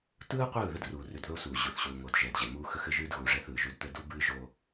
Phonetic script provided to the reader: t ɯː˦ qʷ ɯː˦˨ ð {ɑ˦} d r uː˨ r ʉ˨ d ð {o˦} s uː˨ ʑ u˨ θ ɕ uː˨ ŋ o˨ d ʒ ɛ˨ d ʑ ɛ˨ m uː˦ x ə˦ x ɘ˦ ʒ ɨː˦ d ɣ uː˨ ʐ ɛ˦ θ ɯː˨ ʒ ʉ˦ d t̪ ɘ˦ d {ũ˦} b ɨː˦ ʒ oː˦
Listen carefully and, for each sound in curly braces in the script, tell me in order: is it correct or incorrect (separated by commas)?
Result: incorrect, correct, incorrect